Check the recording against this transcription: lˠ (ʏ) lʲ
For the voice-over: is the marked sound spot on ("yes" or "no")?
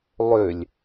yes